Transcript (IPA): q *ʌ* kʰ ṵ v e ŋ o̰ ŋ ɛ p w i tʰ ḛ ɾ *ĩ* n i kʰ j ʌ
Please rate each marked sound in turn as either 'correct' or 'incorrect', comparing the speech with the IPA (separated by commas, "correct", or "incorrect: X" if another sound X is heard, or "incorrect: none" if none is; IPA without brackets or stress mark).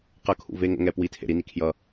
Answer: correct, incorrect: i